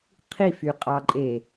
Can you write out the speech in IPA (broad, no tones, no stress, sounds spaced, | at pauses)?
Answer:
qʰ i f y qʼ ɑ ǃʼ e